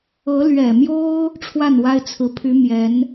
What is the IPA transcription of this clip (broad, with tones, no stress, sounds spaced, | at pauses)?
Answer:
ɤ˧˥ l ɥ ɛ˨˩ m j o˥ ʊ̯ | ʈ͡ʂʰ w a˥˩ n w a˥ ɪ̯ t͡sʰ ɹ̩˧˥ pʰ y˧˥ m j ɛ˧˥ n